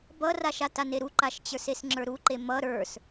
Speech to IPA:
b ʌ r a ʃ a t a n e ɾ u ǃ a ʃ t͡ɕ ə˞ s e s ŋ͡ǁ ə˞ ɾ u ǃ e m ʌ ɾ ə˞ s

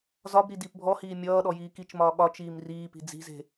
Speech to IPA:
z ɒ b ɾ i d iː p bʱ ɔ h iː mʲ ʌː ɗ ɔ j iː k i t͡ʃ m ɒː ɠ ɒ t͡ʃ iː m r iː p i̤ d͡z i̤ z e̤

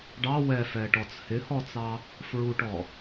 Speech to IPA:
ɖ ɑ w ɛ f ɛ ʈ ɔ t͡s h ɪ h ɔ t͡s ɑ | f ɹ u ʈ ɔ

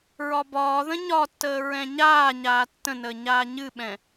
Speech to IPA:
ɹ ɒ b ɒː ð ə̃ ɲ ɒ tː əː ɹ ɛ̃ ɲ aː ɲ aː tː ə̃ n əː ɲ aː ɲ ɨ ɓ ɛ̃

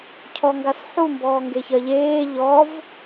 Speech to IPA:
cʰ ɔ ŋ ɡ a s ħ u m b ɔː ŋ ɡ e ç ɜ ʎ eː ʎ ɔ v

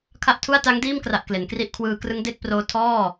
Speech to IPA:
kʰ a˥˩ ʔ tʰ u˥˩ a̯ t a˦˥ ŋ d iː˥˩ m k r a˨˩ ʔ k l e˩˦ n k r i˥˩ ʔ kʰ w ɯː˧ k r ɯ˦˥ ŋ d e˥˩ k̚ p r oː˦˥ tʰ ɔː˥˩

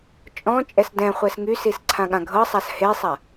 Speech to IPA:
t͡ʃʼ ɔ̃ t͡ʃʼ ɛ s d ɛ̃ χʷ ɛ s ŋ y s i s ǀʰ ã ɠ ã ɡʱ ɤ sˤ a s h e sˤ a

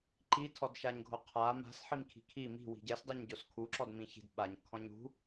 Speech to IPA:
ǃ i tʰ ɔ d ʃ a ɲ ɡʱ o qʰ a m a̤ s ħ i m kʰ i̤ kʰ i m i̤ w i̤ ɟ ɛ s dˤ i ɲ ɟ o s kʰ u ǁ ɔ d m ĩ ç i̤ d ɓ a ɲ kʰ ɔ̃ ɲ ṳ

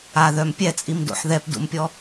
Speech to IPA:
a ð œ m pʲ ɛ t͡sʼ i m d o̰ ħ ð ɛ p d ṵ m pʲ ɔ

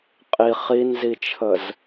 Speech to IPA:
qʼ i χ i n z i t͡ʃʰ ə z

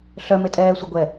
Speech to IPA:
ɬ œ m e tʼ ɛː sʷ i ɡʷ ɛ

